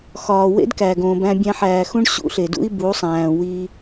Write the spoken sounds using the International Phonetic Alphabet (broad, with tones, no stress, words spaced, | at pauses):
xɒː˨ wḛ˦dkæ˨ɡõː˨bæ̃˧ bʲæ̃˧ħæː˨xũ˦ɳ ɕṵ˦ɬe˨dṵ˦i̯ bu˨˦sˤæ̃ː˨wi˧